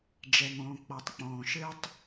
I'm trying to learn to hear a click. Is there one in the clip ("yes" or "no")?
no